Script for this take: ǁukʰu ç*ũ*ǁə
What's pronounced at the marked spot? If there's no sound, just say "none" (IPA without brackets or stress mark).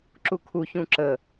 ũ